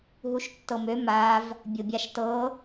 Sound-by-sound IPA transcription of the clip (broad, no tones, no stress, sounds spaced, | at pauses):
ɦ u ʃ tː ɤ m ø m a v | bʲ o bʲ a ʃ t ɤ